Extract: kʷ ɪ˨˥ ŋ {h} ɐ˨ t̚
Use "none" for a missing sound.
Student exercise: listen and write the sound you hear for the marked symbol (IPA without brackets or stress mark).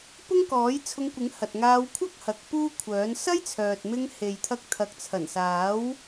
h